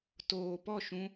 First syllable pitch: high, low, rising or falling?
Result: low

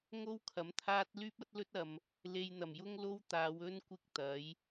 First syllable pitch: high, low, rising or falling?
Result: high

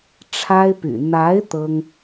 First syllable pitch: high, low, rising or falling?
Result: high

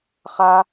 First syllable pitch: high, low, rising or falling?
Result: high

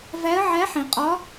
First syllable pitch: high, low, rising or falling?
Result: rising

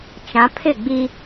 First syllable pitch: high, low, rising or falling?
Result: rising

